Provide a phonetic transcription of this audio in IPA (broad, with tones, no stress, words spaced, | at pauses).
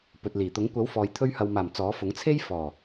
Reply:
pɵ˨t̚liː˨˩t̪ʊ˨˥ŋ kʷɐ˨˥wfɔː˨j t̪ʰɵ˧ɥhɐ˨wmaː˨˩m t͡sɔː˨˥fʊ˨˥ŋ t͡sʰe˥jfɔː˨˩